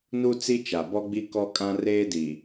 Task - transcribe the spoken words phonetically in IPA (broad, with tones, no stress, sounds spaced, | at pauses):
n u˦ t͡s i˦ t͡ʃ a˨ b ɔ˦ ɡ͡b i˦ k ɔ˦ kʼ ã˦ r eː˦ d i˨